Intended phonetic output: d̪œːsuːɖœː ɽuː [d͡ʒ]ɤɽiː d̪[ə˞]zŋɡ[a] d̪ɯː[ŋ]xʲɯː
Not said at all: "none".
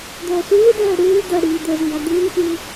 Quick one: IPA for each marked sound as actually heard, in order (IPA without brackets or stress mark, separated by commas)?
d̪, ə˞, a, ŋ